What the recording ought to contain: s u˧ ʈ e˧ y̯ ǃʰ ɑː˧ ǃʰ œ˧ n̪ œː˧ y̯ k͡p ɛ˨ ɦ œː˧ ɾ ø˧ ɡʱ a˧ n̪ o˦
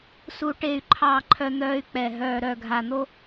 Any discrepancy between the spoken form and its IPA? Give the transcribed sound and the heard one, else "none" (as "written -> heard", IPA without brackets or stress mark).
ø˧ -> œ˧